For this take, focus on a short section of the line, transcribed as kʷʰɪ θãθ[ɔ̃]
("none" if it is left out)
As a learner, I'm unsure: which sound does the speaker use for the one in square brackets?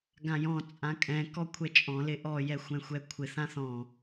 ɔ̃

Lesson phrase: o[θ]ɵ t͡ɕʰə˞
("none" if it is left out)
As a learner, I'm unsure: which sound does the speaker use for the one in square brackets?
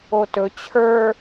t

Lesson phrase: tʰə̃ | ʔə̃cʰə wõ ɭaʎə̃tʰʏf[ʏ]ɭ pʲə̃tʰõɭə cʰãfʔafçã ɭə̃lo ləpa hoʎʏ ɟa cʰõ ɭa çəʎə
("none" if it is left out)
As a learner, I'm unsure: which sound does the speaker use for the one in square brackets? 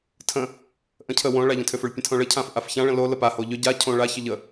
ʏ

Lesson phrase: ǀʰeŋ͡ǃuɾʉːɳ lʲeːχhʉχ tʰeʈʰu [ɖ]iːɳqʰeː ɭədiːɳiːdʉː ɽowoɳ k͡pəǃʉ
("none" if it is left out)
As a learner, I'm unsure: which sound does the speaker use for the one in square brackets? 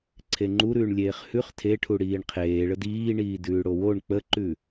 ɽ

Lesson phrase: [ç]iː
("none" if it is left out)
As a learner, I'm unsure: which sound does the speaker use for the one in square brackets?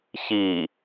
ç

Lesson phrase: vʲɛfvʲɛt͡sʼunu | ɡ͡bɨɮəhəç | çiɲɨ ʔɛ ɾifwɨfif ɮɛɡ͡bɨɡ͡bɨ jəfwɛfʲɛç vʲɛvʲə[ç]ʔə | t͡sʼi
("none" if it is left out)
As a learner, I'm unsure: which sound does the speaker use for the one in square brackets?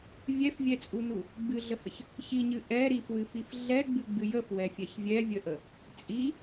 none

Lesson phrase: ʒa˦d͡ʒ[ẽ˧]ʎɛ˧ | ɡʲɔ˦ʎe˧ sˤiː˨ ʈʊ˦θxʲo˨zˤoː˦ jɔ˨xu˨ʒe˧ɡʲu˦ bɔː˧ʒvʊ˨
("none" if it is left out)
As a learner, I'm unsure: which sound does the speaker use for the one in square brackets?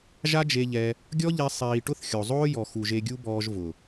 e˧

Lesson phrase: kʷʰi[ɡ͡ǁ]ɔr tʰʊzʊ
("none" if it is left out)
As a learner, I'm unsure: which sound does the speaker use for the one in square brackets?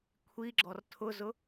ɡ͡ǁ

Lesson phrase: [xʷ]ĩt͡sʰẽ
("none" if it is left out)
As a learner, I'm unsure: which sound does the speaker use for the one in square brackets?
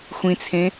xʷ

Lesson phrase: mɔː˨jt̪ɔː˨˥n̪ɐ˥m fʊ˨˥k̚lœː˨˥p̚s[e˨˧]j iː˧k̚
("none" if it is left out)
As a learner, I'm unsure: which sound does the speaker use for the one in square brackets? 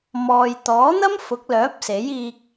e˨˥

